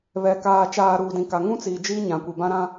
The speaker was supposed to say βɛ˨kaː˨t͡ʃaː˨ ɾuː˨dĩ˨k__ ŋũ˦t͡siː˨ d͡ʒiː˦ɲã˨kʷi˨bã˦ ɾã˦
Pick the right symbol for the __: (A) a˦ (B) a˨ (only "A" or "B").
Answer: B